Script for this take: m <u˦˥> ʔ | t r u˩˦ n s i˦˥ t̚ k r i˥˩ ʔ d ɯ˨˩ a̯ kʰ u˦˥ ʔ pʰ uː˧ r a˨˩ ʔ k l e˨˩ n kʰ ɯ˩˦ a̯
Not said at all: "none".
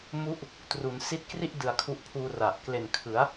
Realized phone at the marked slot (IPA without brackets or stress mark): u˦˥